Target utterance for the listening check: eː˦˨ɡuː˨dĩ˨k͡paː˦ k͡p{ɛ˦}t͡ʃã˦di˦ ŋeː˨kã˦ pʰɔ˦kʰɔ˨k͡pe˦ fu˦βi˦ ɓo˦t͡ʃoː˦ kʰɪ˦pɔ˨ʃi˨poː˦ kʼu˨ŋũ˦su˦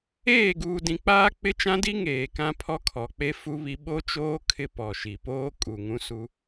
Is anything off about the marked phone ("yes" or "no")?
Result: yes